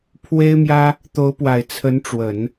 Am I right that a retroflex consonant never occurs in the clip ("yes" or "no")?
no